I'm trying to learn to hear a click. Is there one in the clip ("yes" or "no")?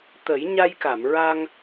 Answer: no